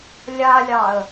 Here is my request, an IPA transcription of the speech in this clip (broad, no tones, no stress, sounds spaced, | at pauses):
lʲ a lʲ ɑ ə̯